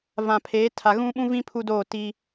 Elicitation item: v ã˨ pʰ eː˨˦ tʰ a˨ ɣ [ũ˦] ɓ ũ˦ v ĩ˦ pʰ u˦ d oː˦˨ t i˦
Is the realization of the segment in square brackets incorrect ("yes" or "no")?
no